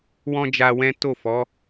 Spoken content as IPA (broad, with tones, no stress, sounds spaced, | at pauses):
w ɔ̃˦ d͡ʒ a˧ w ɛ̃˦ t o˦˨ f ɔ˨˦